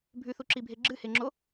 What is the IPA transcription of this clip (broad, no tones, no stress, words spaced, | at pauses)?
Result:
bʱʉθuǁibʱe ɡ͡ǁɨheŋ͡ǁo